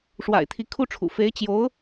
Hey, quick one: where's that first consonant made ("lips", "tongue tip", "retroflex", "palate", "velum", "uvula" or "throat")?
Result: retroflex